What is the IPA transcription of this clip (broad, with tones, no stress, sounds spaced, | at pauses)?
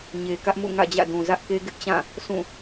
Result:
ɲ e˨ k ä˦ ʔ m ṵ˦˨ ŋ ä̰˦˨ d͡ʑ ä̰˦˨ d ũ˨ z ä˦ ʔ k e˦ ɡ ɪ˦ ʔ t͡ɕ ã˦˨ | sʰ ũ˦˨